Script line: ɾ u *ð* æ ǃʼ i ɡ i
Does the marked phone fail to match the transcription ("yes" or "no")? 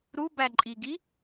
yes